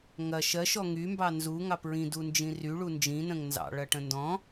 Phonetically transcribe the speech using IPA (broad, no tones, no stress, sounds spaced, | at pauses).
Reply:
ŋ ɐ ʃ ɜ ʃ ɔ ŋ y m b ɑ n z u ŋ ɑ p ɹ ĩ d u n d͡ʒ ĩ r y ɭ u n d͡ʒ ĩ n ə̃ ŋ n z ɑ̰ ɭ ɐ ʈ ə̃ n d ɔ̃